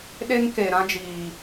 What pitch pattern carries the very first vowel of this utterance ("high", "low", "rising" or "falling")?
high